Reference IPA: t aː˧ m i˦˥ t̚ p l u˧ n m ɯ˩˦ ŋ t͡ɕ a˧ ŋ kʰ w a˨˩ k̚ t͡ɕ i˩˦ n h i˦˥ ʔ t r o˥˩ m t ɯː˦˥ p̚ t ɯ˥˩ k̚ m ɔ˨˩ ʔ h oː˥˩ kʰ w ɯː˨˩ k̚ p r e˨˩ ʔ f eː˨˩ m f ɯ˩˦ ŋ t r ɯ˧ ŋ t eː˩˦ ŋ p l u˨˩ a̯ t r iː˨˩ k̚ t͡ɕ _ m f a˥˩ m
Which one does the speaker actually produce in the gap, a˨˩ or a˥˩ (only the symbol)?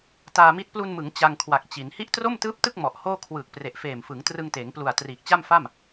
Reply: a˥˩